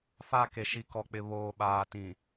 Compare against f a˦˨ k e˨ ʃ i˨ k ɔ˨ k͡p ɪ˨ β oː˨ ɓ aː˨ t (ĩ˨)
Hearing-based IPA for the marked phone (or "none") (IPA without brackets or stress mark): ĩ˨